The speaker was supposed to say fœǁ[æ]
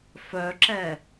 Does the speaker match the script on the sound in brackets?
no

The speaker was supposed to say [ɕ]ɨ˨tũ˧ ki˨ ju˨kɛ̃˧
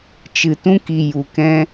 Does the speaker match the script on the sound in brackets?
no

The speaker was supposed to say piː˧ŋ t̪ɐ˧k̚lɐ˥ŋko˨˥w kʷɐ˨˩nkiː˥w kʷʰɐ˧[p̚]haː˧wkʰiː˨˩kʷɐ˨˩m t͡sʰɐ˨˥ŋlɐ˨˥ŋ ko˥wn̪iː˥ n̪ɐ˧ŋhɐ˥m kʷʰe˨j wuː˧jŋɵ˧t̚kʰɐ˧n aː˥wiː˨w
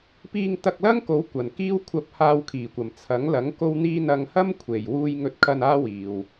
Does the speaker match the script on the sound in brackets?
yes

